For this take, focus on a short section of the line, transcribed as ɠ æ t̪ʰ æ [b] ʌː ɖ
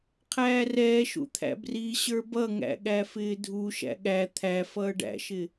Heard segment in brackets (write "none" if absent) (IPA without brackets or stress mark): f